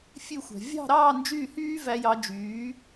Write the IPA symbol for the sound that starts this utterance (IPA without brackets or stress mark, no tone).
fʲ